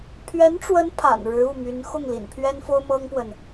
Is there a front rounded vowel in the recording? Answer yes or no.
yes